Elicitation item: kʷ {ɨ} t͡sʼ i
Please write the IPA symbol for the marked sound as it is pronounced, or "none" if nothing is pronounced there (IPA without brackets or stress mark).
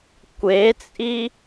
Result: e